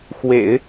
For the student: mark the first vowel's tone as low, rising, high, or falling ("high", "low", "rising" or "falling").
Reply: low